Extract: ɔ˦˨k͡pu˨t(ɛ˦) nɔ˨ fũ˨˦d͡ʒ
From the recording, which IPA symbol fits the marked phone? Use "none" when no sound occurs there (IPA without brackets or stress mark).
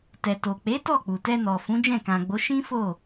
ɛ˧